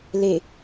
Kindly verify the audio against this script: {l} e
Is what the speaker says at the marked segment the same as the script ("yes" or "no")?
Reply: yes